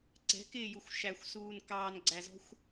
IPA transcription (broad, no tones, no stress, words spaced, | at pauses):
ǀɛ̤kɪːjuxʷ ʃæxʷsuːn kɑːnɡ͡ǀæzɔ̤xʷ